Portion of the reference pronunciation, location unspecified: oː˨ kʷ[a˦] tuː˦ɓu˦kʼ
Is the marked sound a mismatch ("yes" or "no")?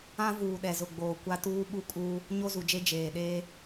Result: no